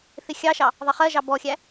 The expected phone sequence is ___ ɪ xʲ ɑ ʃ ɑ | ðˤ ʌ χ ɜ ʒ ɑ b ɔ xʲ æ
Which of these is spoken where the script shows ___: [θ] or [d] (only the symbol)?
θ